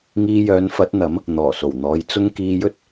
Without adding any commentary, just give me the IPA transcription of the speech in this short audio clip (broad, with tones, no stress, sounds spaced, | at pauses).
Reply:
ŋ iː˧ j œː˨˧ n f ɐ˨˥ t̚ n̪ ɐ˨˥ m | n̪ ɔː˨˩ s o˨˩ w n̪ ɔː˨˧ j t͡s ʊ˧ ŋ k iː˨ j ɵ˥ t̚